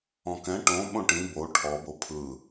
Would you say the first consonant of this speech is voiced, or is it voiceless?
voiceless